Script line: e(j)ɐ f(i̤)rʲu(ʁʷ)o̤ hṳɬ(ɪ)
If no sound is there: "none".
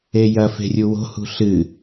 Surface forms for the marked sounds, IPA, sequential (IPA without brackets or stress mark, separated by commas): j, e̤, w, ɨ